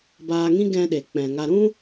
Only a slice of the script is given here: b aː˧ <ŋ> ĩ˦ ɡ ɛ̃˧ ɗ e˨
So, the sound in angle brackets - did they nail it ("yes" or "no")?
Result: yes